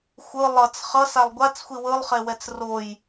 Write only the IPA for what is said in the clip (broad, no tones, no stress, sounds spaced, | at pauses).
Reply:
xʷ ɯ lˠ ʌ t͡s χ ʌ s a lˠ ɡʷ a t͡s xʷ i w ɯ lˠ χ e w ɛ t͡s r o j